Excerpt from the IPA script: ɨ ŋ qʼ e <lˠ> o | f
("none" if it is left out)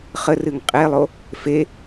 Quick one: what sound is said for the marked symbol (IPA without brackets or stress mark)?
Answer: lˠ